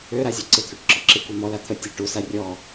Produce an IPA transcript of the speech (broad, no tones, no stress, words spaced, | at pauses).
øɾazʲɔ ǀet̪ʰøʈǁɔǁɪ kʷemɔla t̪ʰə tʲuʈ usa rʲɔ